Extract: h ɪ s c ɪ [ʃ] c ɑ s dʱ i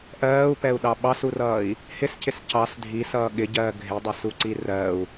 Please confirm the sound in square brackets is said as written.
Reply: no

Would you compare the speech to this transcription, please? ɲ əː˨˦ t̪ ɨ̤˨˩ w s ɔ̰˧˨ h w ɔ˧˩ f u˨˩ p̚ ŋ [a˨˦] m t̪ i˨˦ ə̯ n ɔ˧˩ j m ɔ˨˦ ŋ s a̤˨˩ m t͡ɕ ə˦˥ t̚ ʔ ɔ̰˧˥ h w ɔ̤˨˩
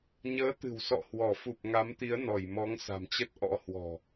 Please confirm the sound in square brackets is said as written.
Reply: yes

